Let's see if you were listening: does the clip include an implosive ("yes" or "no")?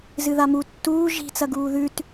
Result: no